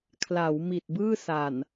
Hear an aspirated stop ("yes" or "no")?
yes